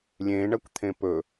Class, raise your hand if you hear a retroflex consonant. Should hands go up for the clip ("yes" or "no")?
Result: yes